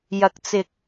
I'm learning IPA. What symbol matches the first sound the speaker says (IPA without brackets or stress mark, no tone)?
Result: j